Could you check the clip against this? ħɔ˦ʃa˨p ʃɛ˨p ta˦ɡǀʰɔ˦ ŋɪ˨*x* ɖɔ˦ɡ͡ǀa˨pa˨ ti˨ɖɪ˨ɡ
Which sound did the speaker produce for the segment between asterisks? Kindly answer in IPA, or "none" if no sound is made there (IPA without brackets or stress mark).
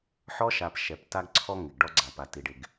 ɡ